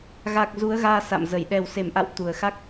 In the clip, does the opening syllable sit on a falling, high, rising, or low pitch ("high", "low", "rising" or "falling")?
low